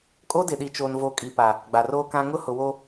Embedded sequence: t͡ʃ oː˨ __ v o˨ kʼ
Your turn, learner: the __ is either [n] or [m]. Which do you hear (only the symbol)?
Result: n